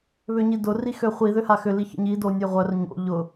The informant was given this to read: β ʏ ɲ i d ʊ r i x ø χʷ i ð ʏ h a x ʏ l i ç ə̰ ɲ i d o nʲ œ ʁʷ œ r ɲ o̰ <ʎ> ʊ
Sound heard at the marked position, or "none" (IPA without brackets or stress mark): ʎ